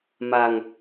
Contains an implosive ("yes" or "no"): no